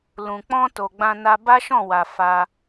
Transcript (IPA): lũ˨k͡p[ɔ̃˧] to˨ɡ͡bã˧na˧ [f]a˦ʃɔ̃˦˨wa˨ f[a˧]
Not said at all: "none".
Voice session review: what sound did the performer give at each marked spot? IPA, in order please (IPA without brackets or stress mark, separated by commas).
ɔ̃˧, b, a˧